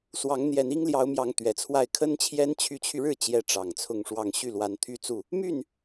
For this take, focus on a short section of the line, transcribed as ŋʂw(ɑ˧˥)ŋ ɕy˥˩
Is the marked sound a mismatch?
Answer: yes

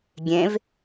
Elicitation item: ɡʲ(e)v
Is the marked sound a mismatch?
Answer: yes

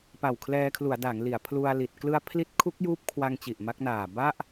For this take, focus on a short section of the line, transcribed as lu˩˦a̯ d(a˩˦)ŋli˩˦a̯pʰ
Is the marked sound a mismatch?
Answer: no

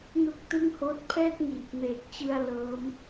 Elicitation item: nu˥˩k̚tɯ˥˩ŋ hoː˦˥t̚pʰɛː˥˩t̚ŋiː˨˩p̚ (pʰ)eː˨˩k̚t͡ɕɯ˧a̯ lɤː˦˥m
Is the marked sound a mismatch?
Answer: yes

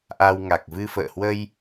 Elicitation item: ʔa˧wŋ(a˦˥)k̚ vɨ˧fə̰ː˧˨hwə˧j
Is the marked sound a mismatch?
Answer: yes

